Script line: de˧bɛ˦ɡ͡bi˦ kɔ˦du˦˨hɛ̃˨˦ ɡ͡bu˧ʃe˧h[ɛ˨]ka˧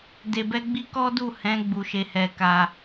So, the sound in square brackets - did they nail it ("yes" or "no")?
no